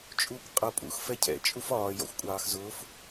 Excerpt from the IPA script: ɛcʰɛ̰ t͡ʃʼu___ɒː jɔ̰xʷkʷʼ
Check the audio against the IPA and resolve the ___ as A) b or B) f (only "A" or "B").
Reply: B